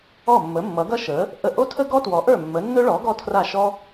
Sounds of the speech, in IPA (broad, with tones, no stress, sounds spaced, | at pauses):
ɔ˥˩ mː ə˩˥ mː ʌ˩˥ ɡ ʌ˥ ʃ ə˩˥ | ʔ ə˥˩ ʔ o˥ tʰ ə˥ ɡ ɔ˥ t w ɔ˩˥ ʔ ə˞˥˩ mː ə˩˥ nː ɵ˥ ɭ ɔ˩˥ ɡ ɔ˥ tʰ r a˥˩ ʃ ɔ˥